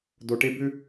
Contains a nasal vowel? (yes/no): no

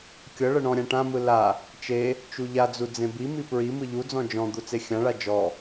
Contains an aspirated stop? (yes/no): no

